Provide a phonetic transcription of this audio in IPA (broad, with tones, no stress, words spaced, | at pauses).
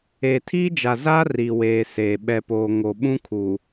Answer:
eː˨tʰiː˦d͡ʒa˨ za˦ ri˨weː˨ seː˨ ɓɛ˨poː˨ ŋo˨ɓũ˦kʰu˨